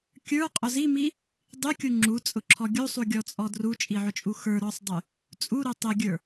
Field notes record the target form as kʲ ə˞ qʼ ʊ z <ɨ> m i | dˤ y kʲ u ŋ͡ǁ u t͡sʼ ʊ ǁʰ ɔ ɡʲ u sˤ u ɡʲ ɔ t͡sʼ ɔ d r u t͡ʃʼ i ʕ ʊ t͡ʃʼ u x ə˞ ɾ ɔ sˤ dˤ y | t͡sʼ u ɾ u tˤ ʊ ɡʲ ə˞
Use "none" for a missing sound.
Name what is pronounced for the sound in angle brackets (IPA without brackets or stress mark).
i